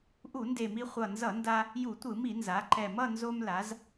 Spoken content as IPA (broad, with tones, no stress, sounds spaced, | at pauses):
ʔ u˧˩˧ n d e˨˩ m i˧ χʷ ʌ˨˩ n z ʌ˧˩˧ n d a˧ | j u˧˩˧ tʷ ɯ˧˩˧ m i˧˩˧ n z a˩˧ ǃ ɛ˨˩ m ʌ˥˧ n z o˧ m l a˩˧ z